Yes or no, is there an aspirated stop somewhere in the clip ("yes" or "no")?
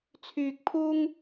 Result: yes